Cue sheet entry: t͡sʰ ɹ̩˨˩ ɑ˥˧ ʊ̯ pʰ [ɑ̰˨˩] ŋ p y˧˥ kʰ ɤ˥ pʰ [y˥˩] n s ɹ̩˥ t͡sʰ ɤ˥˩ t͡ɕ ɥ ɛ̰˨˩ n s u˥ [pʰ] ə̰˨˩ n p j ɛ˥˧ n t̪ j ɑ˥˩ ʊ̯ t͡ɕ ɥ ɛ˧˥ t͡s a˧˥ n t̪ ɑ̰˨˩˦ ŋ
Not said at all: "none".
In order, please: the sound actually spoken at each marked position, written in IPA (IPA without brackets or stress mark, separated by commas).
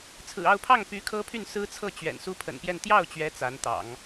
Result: ɑ˥˩, y˥˩, pʰ